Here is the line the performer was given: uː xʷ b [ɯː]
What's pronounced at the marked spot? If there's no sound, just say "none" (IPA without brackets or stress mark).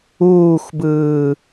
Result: ɯː